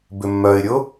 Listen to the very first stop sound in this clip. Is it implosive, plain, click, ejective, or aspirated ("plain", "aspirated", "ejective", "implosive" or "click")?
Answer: plain